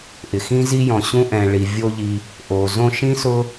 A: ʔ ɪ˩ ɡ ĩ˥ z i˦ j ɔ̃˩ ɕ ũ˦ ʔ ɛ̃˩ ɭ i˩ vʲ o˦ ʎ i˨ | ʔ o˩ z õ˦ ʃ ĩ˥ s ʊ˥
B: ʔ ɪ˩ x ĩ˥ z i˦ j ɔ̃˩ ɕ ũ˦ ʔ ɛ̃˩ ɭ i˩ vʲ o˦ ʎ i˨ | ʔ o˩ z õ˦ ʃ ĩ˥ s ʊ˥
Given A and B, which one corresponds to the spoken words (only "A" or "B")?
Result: B